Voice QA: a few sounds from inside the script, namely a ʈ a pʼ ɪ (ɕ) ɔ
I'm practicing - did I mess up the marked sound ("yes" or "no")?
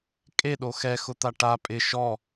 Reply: yes